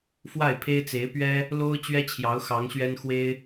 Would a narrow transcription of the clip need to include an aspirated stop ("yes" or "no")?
yes